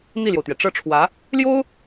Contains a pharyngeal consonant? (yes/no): no